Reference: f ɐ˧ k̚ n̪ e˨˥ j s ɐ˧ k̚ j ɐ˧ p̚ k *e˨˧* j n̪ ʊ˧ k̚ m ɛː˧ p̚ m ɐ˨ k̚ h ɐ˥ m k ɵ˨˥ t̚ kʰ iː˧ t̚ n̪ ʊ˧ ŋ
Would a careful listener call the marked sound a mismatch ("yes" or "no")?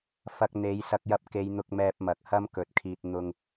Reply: no